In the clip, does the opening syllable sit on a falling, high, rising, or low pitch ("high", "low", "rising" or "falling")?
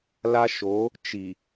high